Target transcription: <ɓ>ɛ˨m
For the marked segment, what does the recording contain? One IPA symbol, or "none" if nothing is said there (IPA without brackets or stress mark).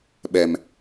ɓ